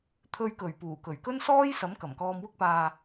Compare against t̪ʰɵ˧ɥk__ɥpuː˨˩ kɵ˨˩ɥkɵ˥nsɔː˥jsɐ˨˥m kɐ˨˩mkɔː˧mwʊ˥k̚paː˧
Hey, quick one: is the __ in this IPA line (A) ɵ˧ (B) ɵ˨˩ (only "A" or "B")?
B